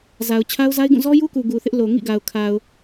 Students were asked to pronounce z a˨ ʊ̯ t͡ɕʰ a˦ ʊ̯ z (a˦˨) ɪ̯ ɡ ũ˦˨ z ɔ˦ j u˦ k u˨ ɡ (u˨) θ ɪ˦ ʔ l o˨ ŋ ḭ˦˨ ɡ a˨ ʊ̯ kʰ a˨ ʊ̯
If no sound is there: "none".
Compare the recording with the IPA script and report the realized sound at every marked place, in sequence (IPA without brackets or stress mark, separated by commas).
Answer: a˦, u˨